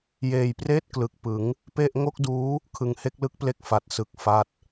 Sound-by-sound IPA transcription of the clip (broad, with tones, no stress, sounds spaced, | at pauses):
j eː˨˩ j p r eː˥˩ t̚ k l ɯ˨˩ k̚ p ɯ˩˦ ŋ | p e˥˩ ʔ ŋ o˥˩ k̚ d uː˦˥ | kʰ ɯ˨˩ ŋ h e˥˩ k̚ l ɯ˦˥ k̚ p l e˥˩ k̚ f a˨˩ t̚ s ɯ˨˩ k̚ f a˦˥ t̚